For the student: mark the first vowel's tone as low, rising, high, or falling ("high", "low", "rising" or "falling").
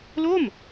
falling